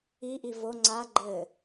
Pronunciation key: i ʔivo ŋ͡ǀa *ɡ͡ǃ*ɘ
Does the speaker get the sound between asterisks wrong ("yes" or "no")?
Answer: no